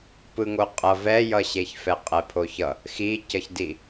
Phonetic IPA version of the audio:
p ɯ ŋ o qʼ ʌ v ɛ j ʌ ɕ e ç f ɛ qʼ ɛ pʰ o ç ʌ | x i c ʌ ç d i

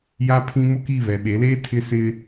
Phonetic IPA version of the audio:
j a˦ pʰ ĩ˦ m ʊ˦ k i˦˨ β ɛ˨ ɓ e˨˦ l eː˦ tʰ ɪ˦ s ɪ˦

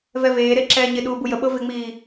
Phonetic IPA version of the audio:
v ɛ v eː ɾ e ǁ ɛː ɲ ɪ ɗ uː b u j ə ɓ ɤ v ɪ ŋ͡m iː

